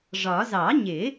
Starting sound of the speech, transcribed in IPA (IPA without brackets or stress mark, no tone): ʐ